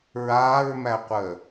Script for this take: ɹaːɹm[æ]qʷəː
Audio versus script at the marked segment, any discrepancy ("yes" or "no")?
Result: no